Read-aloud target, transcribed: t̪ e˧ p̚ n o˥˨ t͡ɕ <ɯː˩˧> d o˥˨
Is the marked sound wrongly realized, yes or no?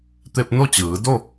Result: no